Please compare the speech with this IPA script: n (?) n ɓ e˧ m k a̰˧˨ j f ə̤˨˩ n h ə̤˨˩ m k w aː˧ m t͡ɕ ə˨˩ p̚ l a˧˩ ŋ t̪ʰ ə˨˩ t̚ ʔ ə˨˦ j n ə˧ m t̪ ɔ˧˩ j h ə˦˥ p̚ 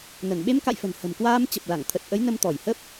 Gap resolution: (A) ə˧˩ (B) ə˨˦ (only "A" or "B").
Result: A